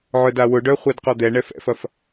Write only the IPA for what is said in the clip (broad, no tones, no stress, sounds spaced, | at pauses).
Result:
ʕ œ d a w ʊ ɖ œ χʷ ɛ d q ɔ d̪ ɛ ɳ ɛ f ɛ̰ f ɐ f